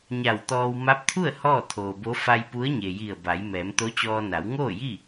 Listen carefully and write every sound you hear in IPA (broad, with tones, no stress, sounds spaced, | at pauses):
ɲ a˧˩ w t̪ ɔː˧ w m a˧˥ p̚ t̪ʰ u˥˨ ə̯ h ɔː˥˨ t̪ʰ oː˩ b o˧˥ f a˧ j p u˧˥ ə̯ ɲ e˩ j i˧˩ ə̯ b a˩˧ j m ɛː˩˧ m t̪ o˧˥ t͡ɕ ɔː˧ n a˩˧ w ŋ oː˥˨ j i˥˨